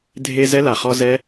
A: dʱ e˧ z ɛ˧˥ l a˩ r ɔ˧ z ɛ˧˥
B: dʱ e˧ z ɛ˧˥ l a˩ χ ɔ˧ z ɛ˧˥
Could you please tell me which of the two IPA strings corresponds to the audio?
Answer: B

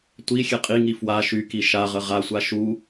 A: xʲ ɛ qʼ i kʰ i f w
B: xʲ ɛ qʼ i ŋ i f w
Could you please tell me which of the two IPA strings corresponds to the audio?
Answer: B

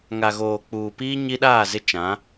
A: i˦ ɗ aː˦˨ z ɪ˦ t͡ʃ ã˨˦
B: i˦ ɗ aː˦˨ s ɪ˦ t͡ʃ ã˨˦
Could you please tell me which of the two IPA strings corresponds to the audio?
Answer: A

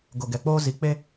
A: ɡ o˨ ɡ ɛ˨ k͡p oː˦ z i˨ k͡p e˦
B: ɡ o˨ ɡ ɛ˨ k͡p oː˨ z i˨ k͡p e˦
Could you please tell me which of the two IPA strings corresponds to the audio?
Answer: A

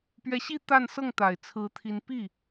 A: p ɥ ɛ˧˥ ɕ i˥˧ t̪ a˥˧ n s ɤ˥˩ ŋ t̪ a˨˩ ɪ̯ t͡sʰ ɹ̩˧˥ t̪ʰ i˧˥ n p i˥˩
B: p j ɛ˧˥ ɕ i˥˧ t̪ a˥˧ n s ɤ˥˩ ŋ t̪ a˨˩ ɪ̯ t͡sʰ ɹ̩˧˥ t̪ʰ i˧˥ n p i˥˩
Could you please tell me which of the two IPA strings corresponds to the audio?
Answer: A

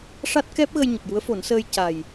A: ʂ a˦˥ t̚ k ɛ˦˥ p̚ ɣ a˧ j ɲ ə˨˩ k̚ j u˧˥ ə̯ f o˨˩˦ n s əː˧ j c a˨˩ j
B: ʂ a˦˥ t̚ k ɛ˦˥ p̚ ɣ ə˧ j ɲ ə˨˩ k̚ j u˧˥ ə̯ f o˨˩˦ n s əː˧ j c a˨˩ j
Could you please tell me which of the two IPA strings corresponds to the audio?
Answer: B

